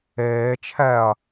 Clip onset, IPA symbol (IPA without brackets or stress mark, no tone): eː